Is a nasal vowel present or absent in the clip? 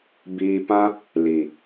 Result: present